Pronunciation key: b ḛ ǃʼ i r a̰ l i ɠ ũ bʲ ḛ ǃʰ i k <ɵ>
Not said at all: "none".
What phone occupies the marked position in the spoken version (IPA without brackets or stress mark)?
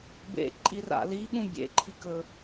ɵ